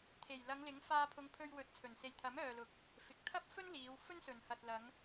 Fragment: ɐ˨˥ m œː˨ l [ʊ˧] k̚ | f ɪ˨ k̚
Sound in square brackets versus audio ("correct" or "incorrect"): incorrect